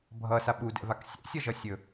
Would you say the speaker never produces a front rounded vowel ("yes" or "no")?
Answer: yes